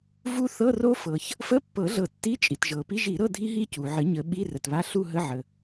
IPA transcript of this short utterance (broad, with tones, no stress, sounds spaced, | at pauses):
v u˦˥ θ ɤ˧˥˧ r o˦˥ f ɤ˩ ç | f ə˧˥˧ pː ɤ˨˩˦ ɮ ɤ˨˩˦ tː i˧˥˧ t͡ʃʼ i˩ t ʒ ɤ˩ p i˧˥˧ ʒ i˨˩˦ ɾ ɤ˧˥˧ dʱ i˦˥ ɦ i˦˥ c u˩ ʕ ə˨˩˦ ɲ ə˨˩˦ ɓ i˧˥˧ r ə˩ t β a˧˥˧ ɬ u˥˧ ɦ ə˧˥˧ ʕ ə˩